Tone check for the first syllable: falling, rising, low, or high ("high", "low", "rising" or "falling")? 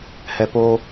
low